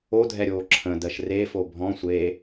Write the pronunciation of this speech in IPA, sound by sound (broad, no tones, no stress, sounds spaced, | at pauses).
o dʱ ɛ ɾʲ oː ǁʰ ə̃ d ɜ ʃ r e f o bʱ ɔ̃ sʷ e